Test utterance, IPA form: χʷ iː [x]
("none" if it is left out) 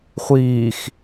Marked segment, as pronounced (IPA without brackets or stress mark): x